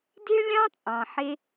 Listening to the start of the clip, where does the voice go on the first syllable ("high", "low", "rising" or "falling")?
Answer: high